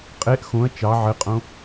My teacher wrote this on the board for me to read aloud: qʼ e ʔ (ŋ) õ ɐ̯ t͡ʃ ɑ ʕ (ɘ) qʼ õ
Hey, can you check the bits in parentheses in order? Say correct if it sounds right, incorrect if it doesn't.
incorrect: x, correct

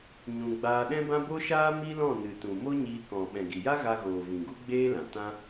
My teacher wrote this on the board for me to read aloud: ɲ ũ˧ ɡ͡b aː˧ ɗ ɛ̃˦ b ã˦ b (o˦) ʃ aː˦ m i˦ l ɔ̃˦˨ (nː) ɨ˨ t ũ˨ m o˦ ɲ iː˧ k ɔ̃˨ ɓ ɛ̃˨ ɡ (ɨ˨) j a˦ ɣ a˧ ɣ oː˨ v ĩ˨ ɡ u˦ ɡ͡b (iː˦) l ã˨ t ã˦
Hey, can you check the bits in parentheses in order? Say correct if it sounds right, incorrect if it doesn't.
correct, incorrect: n, incorrect: i˨, incorrect: eː˦

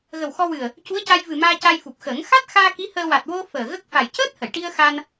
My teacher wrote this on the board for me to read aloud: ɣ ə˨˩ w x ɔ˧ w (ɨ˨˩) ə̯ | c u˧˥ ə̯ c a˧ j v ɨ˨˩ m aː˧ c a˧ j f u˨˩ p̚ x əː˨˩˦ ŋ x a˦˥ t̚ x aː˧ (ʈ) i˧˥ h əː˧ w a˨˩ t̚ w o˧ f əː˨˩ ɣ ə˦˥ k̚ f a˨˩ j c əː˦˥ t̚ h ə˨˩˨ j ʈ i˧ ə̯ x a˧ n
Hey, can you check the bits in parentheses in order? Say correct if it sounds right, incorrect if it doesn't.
correct, incorrect: k

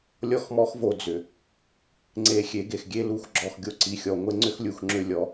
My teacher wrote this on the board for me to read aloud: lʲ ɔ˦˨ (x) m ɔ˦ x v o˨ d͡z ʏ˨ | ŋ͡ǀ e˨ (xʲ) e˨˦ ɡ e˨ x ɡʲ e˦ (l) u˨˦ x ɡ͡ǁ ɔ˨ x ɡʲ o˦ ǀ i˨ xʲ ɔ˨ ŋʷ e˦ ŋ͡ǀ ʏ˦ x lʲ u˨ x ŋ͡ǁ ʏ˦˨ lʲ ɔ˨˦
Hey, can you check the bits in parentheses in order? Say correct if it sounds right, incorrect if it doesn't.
correct, correct, correct

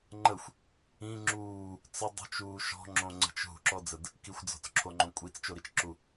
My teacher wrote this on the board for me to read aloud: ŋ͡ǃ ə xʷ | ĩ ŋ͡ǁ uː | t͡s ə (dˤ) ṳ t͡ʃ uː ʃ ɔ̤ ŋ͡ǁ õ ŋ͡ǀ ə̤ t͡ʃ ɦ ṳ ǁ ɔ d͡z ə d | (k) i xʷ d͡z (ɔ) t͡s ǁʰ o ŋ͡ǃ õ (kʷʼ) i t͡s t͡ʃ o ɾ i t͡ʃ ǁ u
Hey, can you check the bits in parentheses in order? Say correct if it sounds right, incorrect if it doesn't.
correct, correct, incorrect: ɔ̤, correct

